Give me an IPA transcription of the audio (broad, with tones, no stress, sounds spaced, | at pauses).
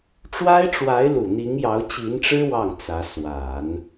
ʈ͡ʂ w a˥ ɪ̯ ʈ͡ʂ w a˧˥ ɪ̯ l u˨˩ n̪ i˧˥ ŋ j ɑ˧˥ ʊ̯ t͡ɕ i˧˥ n ʈ͡ʂ ɻ̩˥ w ɑ˥˩ ŋ t͡s ä˧˥ s w a˨˩˦ n